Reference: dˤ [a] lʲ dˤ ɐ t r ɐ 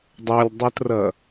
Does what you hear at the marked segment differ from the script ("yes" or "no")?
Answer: yes